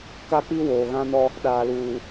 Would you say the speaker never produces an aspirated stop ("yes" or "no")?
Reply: yes